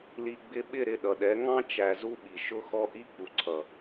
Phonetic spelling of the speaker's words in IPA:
l i˨ ɡ͡b ɪ˧ ɓ ɪ˦˨ ɾ ɪ˦˨ ɗ ʌ˨ ɗ ɛ˨˦ ŋ ɑ̃˦ t͡ʃ æ˨ z u˦ ɓ i˨ ʃ ʊ˦ x ɔ˦ ʔ i˦ k͡p u˨ ǀʰ ʌ˨

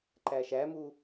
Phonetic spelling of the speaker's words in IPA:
ǃ æ ʃ æ m u

